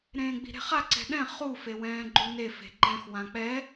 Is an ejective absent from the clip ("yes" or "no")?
yes